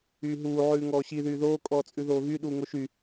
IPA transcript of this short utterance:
yː ɦ uː ʕ ʉː ŋ ɔː ɕ i ð yː ð oː kʼ ɔː t͡sʼ ʉ ð oː ɣ y ɗ uː ŋ o ʃ y

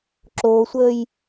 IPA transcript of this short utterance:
ǁ oː sʷ əː j

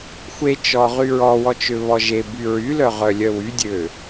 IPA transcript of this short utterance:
xʷ e t͡ʃ ɔ ʁ y ɹ ɔ w ɔ t͡ʃ ø β ɔ ʒ e b y ɹ y l œ ʁ œ lʲ œ w y dʲ ø

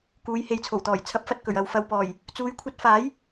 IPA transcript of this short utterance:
k uː˨˧ j h e˨ j t͡sʰ o˨˩ w t̪ ɔː˨˩ j t͡sʰ ɐ˨˥ p̚ f ɐ˨ t̚ k ɵ˨˩ ɥ ɐ˨ w f ɐ˨ w p ɔː˨˩ j | t͡s uː˨˧ j kʷʰ ɐ˧ t̚ f aː˨˥ j

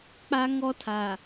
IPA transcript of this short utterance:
k͡p a˦ ŋ ɔ˦ tʰ a˨

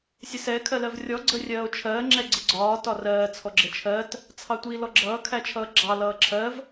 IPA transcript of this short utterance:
sʲ ə s ɛ kʰ ɜ l ɜ v rʲ ɔ ɡ͡ǀ ə rʲ ɜː o̯ t͡ʃʰ ɜː ŋ͡ǁ ɛ ɡ͡ǀ ɪ ɡ͡ǀ ɒː t ɒ r ɜː t͡sʰ ɔ ɡ͡ǁ ə t͡ʃʰ ɜ t | t͡sʰ ɑ tʷ i l ɔ ɡ͡ǁ ʌː kʰ æ t͡ʃʰ ʌː ɡ͡ǁ ɑ l ʌː ǁʰ ɜ v

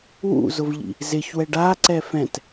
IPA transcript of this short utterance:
w ṵ z ʊ v ʎ ḭ | z ɪ ç w ɛ ɖ a ǀ ɛ f ɛ̃ t

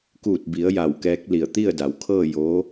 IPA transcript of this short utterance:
k uː˧˩ t̚ b i˩˧ ə̯ j a˧˩ w k ɛː˧˥ k̚ l i˧˩ ə̯ t̪ i˥˨ ə̯ d a˩˧ w kʰ ɤː˥˨ j oː˧˥

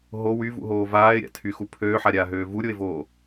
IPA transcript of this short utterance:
ɦ o w y v ṵ ɦ oː v aː ɪ̯ ɾʲ a̰ tʰ y x u pʰ øː ħ a ɾʲ aː ɦ øː v u ɾʲ o ɪ̯ v oː

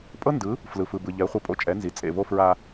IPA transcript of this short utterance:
pʼ ɤ˦ n d ɯ˨˦ | f l ɯ˨ f ɯ˨ b ɯ˨ ʎ ɛ˨˦ χʷ ɤ˧ pʼ o̰˦ t͡ʃʼ ɛ˨˦ n z i˨ t͡sʼ ḛ˦˨ v o˦ f ɹ a˧

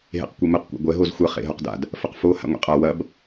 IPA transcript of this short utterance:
ɦ ḛ q kʷ e m ɯ q kʷ a̰ ɡʷ ɛ ɦ o z xʷ ɐ χ ḛ ɦ ɵ q d a̰ d | f ə q f o h a̰ ŋʷ ḛ qʼ a w ɐ b

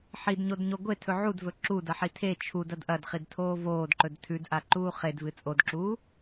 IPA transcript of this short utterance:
ħ i d ɲ o d ɲ o ɡʷ e tʰ ɵ ʕ u d v ɵ ǁ u d ɐ ħ i tʰ e t͡ʃʰ u d ɐ d ʔ ɐ d χ i d tʰ oː v oː d ǃ ɵ d tʰ ʉ d ʔ a ǃ uː χ e d v ɨ t͡sʼ o d ǁ uː

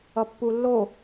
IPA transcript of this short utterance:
ʌ pː u lː o

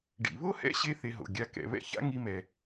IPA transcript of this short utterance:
ɖ ḭ˩ β o˥ h ɛ̰˥ ɕ e˥ θ e˧ ɦ o̰˩ ɡʲ a˧ k ɛ̰˩ β ɛ̰˥ ç a̰˥ ŋ i˧ m ɛ˩

